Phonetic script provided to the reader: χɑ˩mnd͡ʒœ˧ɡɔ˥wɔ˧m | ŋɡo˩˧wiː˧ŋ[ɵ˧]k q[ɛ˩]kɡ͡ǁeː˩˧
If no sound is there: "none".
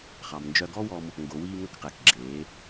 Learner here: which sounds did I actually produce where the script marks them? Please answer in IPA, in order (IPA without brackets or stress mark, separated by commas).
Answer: ɵ˧, ɛ˩